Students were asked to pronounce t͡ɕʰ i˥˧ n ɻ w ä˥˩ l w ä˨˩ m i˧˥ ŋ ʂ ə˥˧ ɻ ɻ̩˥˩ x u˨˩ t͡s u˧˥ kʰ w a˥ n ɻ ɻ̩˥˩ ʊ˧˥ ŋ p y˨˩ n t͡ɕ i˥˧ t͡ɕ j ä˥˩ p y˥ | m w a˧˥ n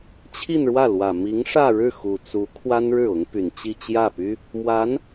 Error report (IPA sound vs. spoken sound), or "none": ə˥˧ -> ä˥˧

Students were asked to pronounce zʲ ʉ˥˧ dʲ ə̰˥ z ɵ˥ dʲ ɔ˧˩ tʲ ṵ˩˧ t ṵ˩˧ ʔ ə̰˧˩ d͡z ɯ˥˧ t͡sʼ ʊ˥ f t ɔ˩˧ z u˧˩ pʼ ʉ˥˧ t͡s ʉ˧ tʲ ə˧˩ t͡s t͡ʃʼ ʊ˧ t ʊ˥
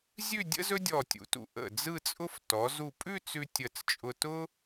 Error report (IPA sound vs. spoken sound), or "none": none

